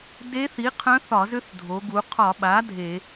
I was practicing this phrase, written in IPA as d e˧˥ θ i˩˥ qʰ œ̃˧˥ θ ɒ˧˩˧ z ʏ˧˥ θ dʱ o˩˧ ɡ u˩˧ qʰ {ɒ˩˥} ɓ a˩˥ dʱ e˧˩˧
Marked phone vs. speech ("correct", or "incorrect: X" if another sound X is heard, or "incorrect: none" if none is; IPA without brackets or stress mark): incorrect: ɒ˧˩˧